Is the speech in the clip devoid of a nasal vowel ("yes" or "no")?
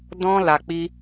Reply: no